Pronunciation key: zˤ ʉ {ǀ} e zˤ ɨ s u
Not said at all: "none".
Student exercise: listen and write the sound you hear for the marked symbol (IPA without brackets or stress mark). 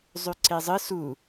ǀ